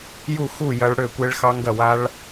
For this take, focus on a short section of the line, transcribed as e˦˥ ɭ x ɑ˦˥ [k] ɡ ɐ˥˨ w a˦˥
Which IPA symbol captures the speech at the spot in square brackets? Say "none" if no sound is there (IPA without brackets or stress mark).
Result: ŋ